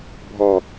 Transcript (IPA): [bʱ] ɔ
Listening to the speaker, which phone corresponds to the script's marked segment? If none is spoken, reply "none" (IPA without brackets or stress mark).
bʱ